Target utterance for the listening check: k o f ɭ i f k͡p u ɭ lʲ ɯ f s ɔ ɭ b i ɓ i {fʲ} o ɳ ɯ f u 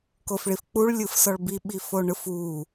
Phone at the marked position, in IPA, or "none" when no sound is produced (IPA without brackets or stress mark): f